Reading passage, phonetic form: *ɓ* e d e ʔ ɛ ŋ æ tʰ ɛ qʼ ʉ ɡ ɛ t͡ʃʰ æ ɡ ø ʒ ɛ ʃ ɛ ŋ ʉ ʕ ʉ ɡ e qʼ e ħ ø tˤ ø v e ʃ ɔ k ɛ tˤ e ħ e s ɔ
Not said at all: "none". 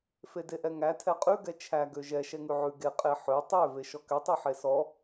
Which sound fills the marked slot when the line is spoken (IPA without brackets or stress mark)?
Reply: f